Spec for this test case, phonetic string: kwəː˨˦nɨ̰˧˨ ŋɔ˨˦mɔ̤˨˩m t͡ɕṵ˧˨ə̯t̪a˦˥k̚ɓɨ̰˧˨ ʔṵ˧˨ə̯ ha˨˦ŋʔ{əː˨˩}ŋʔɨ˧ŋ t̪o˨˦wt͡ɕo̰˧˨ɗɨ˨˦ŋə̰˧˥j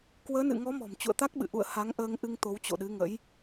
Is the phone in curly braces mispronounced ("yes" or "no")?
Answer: yes